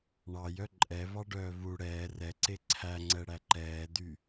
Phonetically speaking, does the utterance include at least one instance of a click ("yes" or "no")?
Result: yes